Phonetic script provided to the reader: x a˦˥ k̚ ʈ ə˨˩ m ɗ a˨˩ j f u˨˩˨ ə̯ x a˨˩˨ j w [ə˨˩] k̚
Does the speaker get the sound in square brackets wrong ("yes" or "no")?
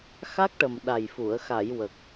no